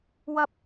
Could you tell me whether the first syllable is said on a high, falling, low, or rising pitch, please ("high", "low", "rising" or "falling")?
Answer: high